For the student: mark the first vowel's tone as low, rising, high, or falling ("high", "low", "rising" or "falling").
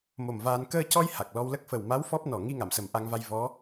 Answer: low